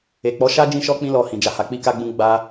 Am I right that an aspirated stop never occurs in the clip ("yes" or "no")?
yes